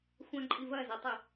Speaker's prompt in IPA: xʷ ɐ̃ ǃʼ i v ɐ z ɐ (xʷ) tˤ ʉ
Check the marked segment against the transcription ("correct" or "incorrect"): incorrect